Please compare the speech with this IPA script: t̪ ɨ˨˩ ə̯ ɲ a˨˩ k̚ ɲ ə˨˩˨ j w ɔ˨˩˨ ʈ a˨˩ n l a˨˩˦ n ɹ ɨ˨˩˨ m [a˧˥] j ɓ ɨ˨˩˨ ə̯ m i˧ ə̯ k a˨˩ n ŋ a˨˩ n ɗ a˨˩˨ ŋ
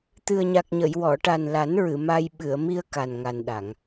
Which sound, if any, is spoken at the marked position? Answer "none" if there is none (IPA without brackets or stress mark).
a˧